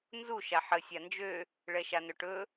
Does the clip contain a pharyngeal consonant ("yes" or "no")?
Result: yes